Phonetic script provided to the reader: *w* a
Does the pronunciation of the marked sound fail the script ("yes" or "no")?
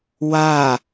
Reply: no